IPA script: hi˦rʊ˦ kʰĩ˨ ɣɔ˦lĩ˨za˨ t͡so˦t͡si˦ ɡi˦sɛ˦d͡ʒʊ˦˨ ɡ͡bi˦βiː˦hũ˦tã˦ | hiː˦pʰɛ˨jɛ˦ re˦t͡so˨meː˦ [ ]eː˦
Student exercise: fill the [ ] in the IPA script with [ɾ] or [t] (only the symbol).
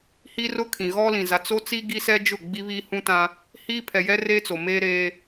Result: ɾ